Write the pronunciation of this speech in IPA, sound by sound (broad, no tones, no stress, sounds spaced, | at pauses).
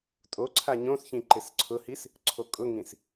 tʼ o ǀʰ a ɲ õ s ç ĩ ǃ ɪ s ǀʰ ʊ h i s | ǀʰ o kʼ ʊ ŋ ĩ s